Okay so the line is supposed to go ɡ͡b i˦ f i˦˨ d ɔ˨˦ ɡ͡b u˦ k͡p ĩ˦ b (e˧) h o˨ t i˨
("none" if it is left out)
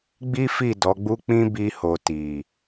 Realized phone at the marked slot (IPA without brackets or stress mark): i˧